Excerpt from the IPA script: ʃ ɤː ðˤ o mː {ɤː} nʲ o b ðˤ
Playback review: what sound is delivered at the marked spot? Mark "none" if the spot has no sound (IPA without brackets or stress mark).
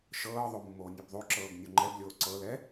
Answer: oː